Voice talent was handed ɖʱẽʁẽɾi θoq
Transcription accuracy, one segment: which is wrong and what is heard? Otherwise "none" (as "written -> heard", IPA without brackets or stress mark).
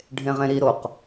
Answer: θ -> ɾ